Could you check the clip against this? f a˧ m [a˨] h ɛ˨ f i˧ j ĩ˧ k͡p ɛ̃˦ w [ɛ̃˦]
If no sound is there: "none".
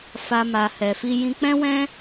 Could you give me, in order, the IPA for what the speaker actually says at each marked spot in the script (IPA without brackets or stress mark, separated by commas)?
a˨, ɛ̃˦